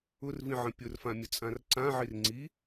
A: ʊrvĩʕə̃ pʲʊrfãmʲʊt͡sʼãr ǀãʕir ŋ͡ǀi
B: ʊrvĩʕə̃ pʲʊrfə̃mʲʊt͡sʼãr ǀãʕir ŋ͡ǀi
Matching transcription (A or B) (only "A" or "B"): A